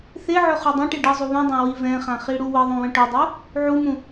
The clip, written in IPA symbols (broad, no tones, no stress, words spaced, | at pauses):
θeʕɵ χudˤẽʈi ɖɘ zˤuβũdˤã wivɛ̃χã χiɽuwəðˤũ wə̃ʈɵdˤu | ʕumũ